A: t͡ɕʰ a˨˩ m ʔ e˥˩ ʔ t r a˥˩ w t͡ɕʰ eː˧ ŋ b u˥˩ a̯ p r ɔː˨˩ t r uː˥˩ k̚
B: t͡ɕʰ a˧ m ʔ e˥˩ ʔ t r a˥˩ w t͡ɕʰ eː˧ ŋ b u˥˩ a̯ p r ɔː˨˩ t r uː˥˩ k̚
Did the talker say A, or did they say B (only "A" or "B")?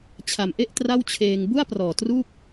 A